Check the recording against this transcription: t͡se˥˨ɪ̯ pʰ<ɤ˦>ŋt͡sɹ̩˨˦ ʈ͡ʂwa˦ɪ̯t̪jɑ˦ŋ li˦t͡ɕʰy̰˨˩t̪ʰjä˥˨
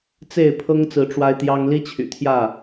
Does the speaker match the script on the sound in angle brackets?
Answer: yes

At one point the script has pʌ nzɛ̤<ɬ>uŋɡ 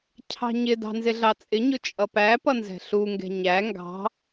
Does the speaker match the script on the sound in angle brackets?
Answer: yes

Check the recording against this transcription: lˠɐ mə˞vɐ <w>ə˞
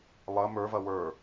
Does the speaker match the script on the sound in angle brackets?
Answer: yes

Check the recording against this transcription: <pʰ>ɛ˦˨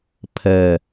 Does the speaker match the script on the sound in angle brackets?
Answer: yes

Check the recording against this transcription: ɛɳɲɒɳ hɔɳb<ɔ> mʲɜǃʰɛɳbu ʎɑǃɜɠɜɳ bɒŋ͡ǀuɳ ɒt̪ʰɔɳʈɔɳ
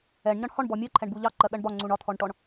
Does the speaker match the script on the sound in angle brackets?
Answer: yes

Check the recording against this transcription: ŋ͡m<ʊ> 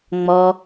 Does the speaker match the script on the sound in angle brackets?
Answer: no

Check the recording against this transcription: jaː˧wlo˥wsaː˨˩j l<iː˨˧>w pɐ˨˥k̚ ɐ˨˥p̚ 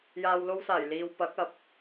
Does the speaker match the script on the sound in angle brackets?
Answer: no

